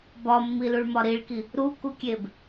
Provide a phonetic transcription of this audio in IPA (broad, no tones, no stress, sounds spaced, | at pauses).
b ɒ mː i l u ɭ m ɒ ɾ i ɭ k i | ɾ u k u kʲ e b